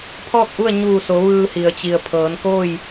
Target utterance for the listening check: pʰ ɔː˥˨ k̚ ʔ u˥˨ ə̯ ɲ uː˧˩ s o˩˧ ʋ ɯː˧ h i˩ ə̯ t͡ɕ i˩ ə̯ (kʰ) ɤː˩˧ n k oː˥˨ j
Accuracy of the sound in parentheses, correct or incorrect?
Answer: incorrect